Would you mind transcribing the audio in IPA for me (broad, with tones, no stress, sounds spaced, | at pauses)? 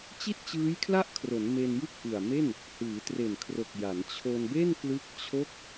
t͡ɕ i˥˩ t̚ t͡ɕ ɯː˦˥ j kʰ l a˥˩ ʔ kʰ r o˩˦ n m e˧ n j ɯ˥˩ k̚ ʔ ɯ˨˩ a̯ m e˥˩ n | h ɯː˩˦ t r e˨˩ n kʰ r o˨˩ k̚ j a˩˦ n t͡ɕʰ o˧ n b e˥˩ n k l ɯ˦˥ k̚ t͡ɕʰ o˦˥ k̚